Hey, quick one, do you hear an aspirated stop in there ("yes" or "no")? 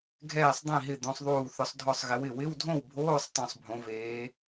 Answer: no